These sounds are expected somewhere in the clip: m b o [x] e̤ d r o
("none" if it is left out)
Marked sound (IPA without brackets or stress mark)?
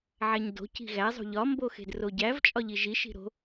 x